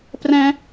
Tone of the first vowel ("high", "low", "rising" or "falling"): high